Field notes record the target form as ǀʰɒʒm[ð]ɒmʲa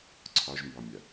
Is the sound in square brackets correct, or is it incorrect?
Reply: incorrect: b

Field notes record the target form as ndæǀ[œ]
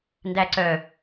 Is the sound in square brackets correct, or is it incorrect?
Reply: correct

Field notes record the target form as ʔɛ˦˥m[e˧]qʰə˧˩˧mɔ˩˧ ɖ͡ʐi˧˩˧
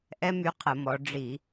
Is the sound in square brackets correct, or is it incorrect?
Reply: incorrect: y˧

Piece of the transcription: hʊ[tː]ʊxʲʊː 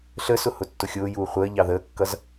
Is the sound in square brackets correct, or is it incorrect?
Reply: correct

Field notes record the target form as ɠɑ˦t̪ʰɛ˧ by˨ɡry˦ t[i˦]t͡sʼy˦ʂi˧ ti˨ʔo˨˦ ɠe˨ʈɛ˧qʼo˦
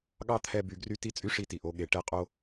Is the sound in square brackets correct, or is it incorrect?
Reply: correct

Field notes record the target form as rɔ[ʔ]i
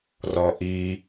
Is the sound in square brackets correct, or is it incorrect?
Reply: correct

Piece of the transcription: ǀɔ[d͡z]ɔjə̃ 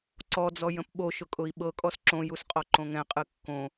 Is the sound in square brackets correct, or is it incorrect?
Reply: correct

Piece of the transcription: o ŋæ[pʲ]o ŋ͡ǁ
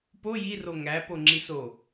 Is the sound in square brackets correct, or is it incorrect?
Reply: incorrect: p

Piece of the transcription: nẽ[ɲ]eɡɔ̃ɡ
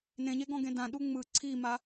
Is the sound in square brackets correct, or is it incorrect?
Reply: correct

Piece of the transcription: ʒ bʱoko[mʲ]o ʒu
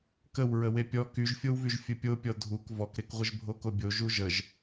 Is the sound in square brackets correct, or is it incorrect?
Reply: incorrect: bʲ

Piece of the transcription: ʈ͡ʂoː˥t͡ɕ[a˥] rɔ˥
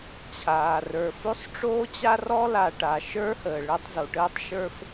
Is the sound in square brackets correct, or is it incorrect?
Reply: correct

